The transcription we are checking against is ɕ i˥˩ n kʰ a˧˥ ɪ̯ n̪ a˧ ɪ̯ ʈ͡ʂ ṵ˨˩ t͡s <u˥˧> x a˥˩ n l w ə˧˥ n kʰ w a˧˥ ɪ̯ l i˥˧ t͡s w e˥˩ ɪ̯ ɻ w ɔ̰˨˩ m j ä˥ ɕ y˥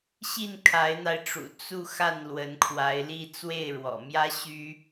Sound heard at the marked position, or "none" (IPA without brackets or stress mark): u˥˧